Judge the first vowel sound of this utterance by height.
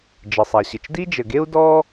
mid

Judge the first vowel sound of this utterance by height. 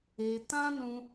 mid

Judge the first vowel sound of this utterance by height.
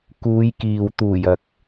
high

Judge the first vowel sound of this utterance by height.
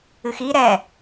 high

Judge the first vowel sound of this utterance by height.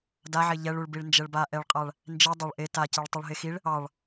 low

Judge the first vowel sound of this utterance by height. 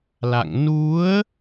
low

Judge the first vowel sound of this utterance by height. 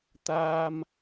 low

